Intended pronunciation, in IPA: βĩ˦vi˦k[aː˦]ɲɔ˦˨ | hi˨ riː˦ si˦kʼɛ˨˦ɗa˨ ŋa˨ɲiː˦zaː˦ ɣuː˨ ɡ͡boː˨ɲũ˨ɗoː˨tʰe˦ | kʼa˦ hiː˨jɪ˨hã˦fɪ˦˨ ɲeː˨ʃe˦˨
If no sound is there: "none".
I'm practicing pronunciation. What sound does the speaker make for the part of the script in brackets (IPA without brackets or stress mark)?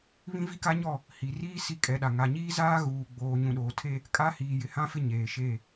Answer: a˦